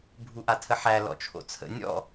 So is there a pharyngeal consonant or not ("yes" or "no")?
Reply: yes